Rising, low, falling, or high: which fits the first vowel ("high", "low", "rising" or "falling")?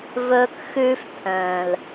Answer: high